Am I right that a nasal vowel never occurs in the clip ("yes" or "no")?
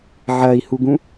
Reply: no